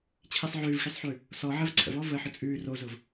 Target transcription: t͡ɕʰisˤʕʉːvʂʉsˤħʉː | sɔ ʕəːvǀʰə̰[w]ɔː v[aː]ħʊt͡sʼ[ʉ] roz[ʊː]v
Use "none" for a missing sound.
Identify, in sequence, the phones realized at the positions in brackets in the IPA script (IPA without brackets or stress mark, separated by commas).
v, əː, ʉː, ʊː